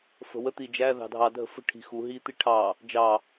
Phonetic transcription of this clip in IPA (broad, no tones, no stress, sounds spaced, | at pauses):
f ə̤ w ə t̪ i d͡ʒ æ ð ɑ̤ dʱ ɑ dʱ ə̤ f ə̤ ʈʰ i̤ x u ɦ i t̪ i ʈʰ ɑ | d͡ʒ ɑ